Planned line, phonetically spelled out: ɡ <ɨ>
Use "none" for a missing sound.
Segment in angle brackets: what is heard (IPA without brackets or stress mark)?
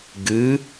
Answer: ɨ